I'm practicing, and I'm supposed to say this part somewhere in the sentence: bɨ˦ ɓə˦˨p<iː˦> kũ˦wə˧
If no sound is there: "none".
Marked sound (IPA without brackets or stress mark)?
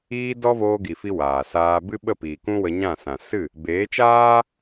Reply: iː˨